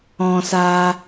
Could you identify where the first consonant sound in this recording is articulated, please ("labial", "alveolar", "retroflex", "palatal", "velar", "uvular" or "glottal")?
alveolar